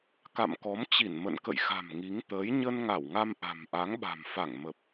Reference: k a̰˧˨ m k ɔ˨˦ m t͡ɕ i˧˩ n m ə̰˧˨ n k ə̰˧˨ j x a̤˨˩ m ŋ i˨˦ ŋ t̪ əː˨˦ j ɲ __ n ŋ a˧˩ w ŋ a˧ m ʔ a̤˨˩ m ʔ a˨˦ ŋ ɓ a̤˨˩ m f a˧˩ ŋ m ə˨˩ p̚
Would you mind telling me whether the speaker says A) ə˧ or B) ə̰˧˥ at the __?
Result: A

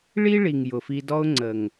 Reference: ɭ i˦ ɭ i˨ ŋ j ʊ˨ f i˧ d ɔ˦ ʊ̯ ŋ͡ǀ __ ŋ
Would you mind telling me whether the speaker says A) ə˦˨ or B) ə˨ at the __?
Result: B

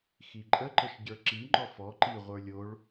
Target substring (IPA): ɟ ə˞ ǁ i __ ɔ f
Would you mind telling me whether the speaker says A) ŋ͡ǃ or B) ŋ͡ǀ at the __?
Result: A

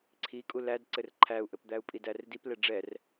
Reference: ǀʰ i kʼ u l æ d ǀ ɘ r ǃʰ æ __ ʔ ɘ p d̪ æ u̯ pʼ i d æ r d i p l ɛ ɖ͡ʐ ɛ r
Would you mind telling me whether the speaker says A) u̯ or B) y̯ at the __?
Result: A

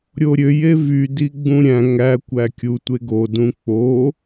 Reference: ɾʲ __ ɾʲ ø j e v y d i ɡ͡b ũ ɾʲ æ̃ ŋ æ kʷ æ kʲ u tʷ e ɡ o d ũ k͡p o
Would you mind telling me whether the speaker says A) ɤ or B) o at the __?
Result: B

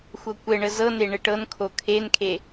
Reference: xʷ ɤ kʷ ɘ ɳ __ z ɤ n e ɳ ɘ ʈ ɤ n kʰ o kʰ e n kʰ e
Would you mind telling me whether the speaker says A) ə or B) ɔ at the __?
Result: A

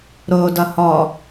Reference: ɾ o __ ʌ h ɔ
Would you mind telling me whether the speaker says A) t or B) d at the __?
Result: B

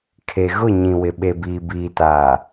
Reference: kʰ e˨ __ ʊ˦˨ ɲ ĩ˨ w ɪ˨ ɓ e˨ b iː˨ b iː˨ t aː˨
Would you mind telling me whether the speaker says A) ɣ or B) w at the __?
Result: A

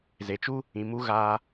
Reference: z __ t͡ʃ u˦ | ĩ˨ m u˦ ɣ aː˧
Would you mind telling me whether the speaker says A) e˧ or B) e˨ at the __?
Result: B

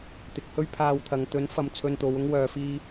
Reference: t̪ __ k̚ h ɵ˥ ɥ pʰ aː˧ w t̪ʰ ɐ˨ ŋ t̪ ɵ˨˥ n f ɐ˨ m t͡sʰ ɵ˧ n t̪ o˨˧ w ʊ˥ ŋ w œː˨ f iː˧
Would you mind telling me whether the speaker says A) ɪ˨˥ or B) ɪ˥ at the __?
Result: A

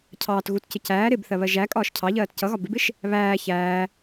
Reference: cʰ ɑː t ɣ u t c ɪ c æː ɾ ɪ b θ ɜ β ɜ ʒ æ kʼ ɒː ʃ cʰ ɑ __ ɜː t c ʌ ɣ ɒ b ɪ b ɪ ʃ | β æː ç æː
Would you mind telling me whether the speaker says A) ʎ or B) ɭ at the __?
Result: A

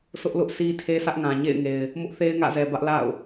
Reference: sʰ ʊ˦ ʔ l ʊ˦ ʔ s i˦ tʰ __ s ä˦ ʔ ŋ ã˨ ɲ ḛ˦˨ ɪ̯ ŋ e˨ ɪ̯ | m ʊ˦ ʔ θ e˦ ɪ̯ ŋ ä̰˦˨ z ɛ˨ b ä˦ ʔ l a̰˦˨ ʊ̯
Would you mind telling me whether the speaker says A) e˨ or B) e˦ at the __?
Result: B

